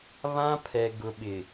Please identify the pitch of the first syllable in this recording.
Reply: high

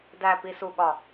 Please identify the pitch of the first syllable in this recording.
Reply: low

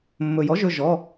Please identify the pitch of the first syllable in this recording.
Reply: low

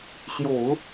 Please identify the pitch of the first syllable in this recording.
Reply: low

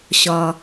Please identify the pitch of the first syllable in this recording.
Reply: low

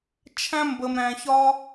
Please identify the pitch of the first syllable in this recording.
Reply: high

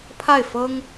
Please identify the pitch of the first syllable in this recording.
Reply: falling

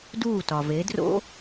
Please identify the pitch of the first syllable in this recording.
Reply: falling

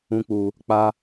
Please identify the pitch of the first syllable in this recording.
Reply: high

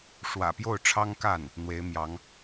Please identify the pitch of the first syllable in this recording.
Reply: low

